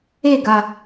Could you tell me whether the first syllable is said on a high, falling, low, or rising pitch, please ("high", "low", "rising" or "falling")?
falling